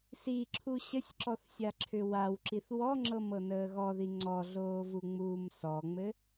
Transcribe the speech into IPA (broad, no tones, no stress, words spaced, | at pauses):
siǁʰu ɕəsʲǁɔθsʲaǁʰʏ wawǁiθ wɔŋ͡ǁɤmɤnəː ɣɔði ŋ͡ǀɔɮoːvuŋ͡muːm sɔŋ͡mɘ